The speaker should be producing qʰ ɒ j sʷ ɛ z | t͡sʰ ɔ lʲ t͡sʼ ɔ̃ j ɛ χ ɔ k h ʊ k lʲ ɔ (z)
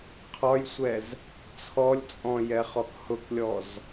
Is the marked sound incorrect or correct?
correct